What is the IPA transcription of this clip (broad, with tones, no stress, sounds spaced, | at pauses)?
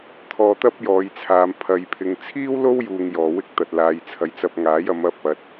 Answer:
t̪ʰ ɔː˧ t̪ ɐ˥ p̚ j ɔː˨˧ j t͡sʰ aː˨ m pʰ ɐ˨ j pʰ ɪ˨ ŋ t͡sʰ iː˥ w l o˥ w j uː˧ ŋ j ɔː˨ w ɪ˥ k̚ t̪ ɐ˨ t̚ l aː˨ j t͡sʰ ɐ˨˧ j t͡s ɐ˧ p̚ ŋ aː˨˥ j ɐ˨˧ m ɐ˧ p̚ ɐ˨ t̚